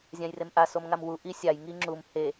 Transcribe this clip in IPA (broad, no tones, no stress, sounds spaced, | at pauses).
zʲ ã j r e m ʔ a s o m ŋ a m w u ʔ i sʲ a j ŋ i ŋ͡ǁ u m h e